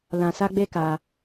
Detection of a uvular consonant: absent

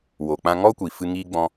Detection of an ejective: absent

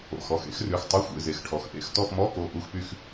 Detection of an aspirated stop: present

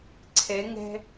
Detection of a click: present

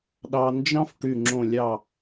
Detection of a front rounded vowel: present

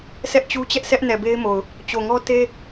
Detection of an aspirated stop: absent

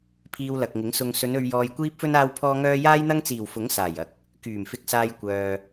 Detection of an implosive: absent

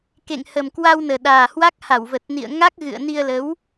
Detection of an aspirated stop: absent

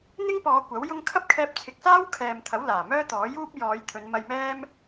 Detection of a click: absent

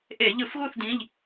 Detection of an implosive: absent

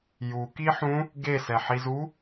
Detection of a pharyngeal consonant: present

